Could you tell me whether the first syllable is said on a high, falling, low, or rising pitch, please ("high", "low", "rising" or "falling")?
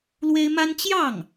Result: high